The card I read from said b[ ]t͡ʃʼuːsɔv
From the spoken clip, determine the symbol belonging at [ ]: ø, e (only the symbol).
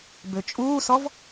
ø